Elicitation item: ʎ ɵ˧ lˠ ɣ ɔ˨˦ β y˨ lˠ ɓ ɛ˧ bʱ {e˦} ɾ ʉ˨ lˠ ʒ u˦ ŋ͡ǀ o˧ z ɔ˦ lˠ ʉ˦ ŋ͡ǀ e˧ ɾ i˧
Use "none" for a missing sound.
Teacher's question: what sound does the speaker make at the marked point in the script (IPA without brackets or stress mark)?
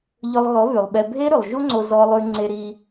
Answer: e˦